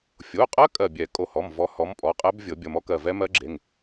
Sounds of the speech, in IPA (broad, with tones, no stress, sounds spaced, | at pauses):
fʲ o˩˧˩ qʼ ɜ˦˥ kʼ ɜ˧˩ bʲ ɛ˨˩˦ kʼ o˧˩ h ɔ˩˧˩ m v ɔ˨˥ h ɔ˨˥ m pʼ ɔ˩˧˩ qʼ ɛ˦˥ b vʲ ɤ˨˩˦ bʲ ʌ˩˧˩ m ɔ˦˥ k ɜ˧˩ v ɛ˦˥ m ɜ˦˥ ɡ͡ǁ e˩˧˩ ŋ